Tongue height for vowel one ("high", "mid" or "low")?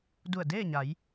high